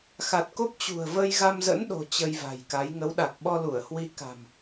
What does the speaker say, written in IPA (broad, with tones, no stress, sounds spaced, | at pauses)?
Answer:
x a˨˩ t̚ k o˦˥ p̚ t͡ɕ ṳ˨˩ ə̯ v ə˧ j ɣ a˧ m z ə̰˧˥ n ɗ o̤˨˩ t͡ɕ ə˧ j v a̤˨˩ j k a˨˦ j ŋ ə˨˦ w ɗ a˨˩ k̚ ɓ ɔ˧ l u˧˩ ə̯ h w i˧ k a̤˨˩ m